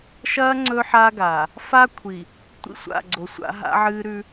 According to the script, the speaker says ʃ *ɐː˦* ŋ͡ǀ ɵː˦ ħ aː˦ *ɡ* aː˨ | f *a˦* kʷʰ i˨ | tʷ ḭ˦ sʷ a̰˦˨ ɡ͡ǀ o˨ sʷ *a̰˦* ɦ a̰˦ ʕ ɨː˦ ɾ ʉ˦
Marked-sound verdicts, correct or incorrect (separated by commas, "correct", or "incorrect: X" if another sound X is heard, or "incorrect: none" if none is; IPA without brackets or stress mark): correct, correct, correct, correct